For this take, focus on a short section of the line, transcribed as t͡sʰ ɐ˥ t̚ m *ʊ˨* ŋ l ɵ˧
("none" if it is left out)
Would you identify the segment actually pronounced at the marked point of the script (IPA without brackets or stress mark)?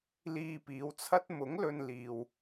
ʊ˨˥